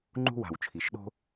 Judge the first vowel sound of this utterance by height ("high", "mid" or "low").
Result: high